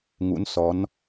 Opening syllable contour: rising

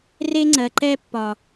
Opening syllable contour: high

